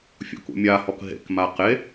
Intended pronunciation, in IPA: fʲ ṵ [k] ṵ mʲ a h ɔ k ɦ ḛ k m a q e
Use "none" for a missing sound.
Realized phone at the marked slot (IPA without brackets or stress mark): k